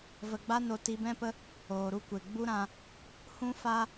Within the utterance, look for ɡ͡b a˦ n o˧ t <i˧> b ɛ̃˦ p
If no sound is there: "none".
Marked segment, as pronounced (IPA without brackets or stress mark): i˧